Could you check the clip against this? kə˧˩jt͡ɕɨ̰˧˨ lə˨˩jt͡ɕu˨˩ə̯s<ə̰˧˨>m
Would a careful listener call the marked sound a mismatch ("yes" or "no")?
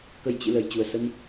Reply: yes